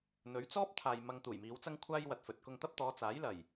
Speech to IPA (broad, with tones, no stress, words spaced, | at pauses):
n̪ɵ˨˧ɥt͡sɔː˥p̚ t̪ʰaː˨j mɐ˧ŋt̪uː˨˩j miː˨˧wt͡sɐ˥ŋ kʷʰaː˥jwɐ˨t̚fɵ˨t̚ kʊ˧ŋt̪ɐ˥p̚ t̪ɔː˨˧t͡saː˨˥jlɐ˨˩j